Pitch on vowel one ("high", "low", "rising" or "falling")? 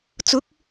rising